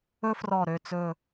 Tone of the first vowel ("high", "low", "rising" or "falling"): high